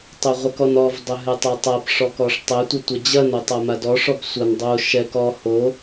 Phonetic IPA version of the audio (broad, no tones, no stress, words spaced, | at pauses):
tˤoʁʷɛkɔnɔv dˤɘɦɘtˤatˤap ʂɔkɔʂtˤɘ tʷɘtʷɐd͡ʑɐn otˤamadɔ ʂɔbsʷɐn dˤo ʃɛk ɔ ho